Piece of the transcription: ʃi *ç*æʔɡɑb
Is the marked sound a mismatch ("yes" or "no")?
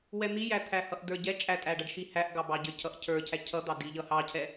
yes